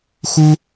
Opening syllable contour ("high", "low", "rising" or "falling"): high